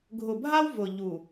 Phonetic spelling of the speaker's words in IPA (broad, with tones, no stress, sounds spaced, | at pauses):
ɡʱ ʊ˨ bʱ a˦ w v ʊ˨ ʎ u˨